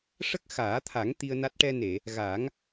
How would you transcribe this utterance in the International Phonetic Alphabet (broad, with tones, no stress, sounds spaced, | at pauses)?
ʂ ə˦˥ k̚ x aː˨˩˦ t̪ʰ a˨˩˦ ŋ t̪ i˧ ə̯ n a˦˥ t̚ ʈ ɛ˧ n e˨˩˨ | ɣ a˨˩˦ ŋ